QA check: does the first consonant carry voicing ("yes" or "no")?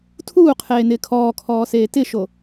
no